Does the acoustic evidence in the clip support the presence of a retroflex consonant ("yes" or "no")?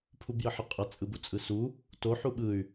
no